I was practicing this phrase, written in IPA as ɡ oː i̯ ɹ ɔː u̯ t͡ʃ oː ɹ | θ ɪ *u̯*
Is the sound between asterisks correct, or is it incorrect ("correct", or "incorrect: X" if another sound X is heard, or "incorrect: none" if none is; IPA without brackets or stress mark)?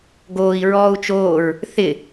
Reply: incorrect: none